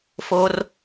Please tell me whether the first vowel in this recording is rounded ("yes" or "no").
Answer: yes